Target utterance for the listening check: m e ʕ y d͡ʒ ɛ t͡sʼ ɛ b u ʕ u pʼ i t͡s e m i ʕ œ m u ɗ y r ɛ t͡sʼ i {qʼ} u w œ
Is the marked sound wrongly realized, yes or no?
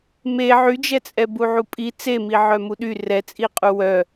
no